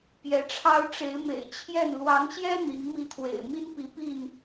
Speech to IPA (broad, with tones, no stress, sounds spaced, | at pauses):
p j ɛ˨˦ ʈ͡ʂʰ ɑ˦ ʊ̯ ʈ͡ʂ e˨˦ ɪ̯ m ḛ˨˩ ɪ̯ t͡ɕʰ j ɛ˥˨ n l w ɑ˨˦ ŋ ɕ j ɛ˦ n̪ i˨˦ ŋ m i˥˨ t̪ʰ w ḛ˨˩ ɪ̯ m i˦ n p i˨˦ p i˥˨ n